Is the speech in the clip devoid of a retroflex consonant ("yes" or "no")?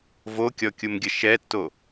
yes